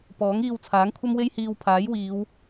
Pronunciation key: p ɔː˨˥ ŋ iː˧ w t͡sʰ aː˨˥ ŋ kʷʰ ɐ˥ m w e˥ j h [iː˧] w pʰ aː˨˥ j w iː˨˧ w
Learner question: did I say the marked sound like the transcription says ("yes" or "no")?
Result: yes